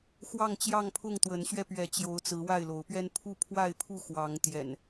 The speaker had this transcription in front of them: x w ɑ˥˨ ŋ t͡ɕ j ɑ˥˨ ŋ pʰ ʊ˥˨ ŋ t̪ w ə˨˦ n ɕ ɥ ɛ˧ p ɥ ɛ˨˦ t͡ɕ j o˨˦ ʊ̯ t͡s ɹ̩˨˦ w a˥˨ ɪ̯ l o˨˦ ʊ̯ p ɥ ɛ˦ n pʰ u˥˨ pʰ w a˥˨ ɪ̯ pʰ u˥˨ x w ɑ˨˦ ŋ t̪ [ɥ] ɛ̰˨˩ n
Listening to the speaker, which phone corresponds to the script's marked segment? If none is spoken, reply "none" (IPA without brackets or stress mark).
j